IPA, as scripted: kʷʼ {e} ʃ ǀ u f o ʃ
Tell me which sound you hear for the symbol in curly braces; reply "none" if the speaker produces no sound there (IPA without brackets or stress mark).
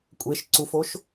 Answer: e